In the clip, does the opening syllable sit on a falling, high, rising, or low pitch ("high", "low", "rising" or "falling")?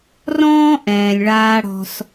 high